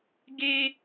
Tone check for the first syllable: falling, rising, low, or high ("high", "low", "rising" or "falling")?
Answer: high